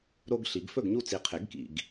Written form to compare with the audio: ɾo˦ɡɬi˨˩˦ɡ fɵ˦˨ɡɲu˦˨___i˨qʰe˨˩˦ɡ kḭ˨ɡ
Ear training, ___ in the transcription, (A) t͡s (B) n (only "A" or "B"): A